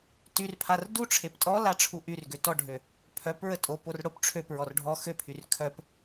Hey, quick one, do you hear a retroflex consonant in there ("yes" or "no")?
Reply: yes